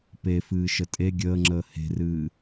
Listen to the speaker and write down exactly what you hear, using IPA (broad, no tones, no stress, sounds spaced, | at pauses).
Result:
p e f ɨː ʃ ə tʼ e ɡʲ əː ŋ͡ǁ əː h e̤ r ɨː